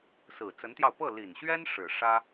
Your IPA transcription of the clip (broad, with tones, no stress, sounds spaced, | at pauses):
s ɹ̩˨˩ t͡s ə˧˥ n t̪ j ɑ˧ ʊ̯ p ɤ˥˩ l i˨˩ n ɕ ɥ ɛ˥ n ʂ ɻ̩˨˩ ʂ ä˥